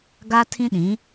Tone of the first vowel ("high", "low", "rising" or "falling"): high